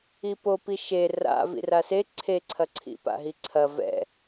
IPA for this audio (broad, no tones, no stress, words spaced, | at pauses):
ipopi ʃe ra̰ vḭrase ǀʰeǀʰɐǀʰḭ pa̰ɦiǀʰɐ vɛ̰